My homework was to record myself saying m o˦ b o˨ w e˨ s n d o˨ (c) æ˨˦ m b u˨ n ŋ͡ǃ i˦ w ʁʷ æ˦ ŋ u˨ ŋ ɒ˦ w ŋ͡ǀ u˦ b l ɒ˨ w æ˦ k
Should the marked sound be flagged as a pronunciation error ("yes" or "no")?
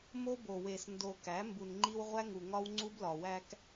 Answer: yes